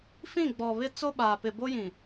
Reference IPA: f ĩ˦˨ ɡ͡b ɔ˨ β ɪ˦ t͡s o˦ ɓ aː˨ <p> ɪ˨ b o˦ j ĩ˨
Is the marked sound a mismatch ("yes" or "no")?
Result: no